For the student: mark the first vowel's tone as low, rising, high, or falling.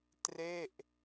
falling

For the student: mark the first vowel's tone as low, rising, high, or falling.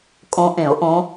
rising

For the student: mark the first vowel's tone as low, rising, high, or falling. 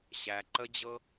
low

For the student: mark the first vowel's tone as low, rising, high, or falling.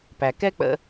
low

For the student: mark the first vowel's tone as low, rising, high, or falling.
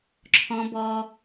high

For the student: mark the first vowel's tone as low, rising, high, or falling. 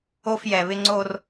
low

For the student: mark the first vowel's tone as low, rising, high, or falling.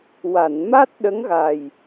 low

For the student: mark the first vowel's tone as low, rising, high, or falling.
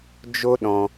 high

